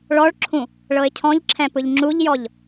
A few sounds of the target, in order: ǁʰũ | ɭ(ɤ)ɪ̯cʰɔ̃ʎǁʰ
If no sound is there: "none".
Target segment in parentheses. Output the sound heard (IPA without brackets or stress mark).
ɤ